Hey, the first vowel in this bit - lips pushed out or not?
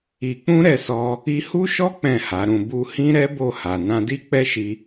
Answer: no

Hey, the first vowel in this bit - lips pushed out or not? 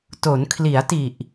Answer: yes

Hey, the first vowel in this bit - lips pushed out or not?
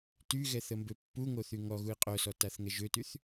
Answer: yes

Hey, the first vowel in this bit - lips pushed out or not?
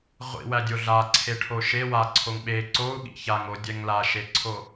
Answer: no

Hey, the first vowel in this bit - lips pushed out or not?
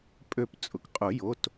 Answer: yes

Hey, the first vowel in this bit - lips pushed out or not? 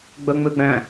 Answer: yes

